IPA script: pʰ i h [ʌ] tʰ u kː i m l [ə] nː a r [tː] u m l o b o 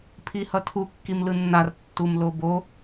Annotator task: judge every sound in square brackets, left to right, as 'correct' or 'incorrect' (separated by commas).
correct, incorrect, correct